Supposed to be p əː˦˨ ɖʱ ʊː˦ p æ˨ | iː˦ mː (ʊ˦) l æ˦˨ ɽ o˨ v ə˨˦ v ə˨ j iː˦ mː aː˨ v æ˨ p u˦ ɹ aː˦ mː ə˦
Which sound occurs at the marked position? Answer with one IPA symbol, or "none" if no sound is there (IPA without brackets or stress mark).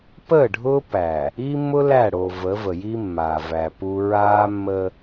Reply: ʊ˦